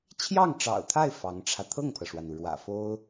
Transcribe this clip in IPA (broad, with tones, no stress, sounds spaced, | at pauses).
t͡ɕʰ j ɑ˥˩ ŋ ʈ͡ʂ ɑ̰˨˩ ʊ̯ t̪ʰ a˥˩ ɪ̯ f ɑ˧˥ ŋ ʈ͡ʂʰ ä˧ t̪ʰ ɤ˥˩ ŋ pʰ ɤ˩ ʂ w a˩ n u˩ ɻ w ä̰˨˩ f o˥ ʊ̯